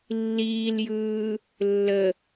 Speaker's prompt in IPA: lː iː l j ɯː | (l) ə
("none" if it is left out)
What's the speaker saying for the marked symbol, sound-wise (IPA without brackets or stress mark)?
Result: lː